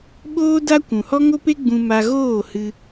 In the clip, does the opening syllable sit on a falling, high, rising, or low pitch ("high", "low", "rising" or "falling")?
high